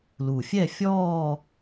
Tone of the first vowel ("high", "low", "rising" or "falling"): low